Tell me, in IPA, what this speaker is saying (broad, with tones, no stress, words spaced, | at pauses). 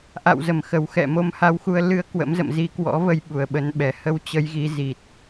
ʔa̰˧˨wzə˧˩mxə˨˩w xɛ̰˧˨ mo˨˦mha˧wxu˧ə̯ lɨ˧ə̯ kwə̰˧˥m zə̰˧˨mzi˧kwɔ̰˧˥və˧j ɓu˨˩ə̯ɓə˨˦n ɓɛ˧˩hə˧w t͡ɕə˨˦jɣi˨˦ zi˨˩t̚